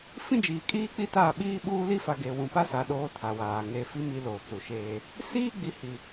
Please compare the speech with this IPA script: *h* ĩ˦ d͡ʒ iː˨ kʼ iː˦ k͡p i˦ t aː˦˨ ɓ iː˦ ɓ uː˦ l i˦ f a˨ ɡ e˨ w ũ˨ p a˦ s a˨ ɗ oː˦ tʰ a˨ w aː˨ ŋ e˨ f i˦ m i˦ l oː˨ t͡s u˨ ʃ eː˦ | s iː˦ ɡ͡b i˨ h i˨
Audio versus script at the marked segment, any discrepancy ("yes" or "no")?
yes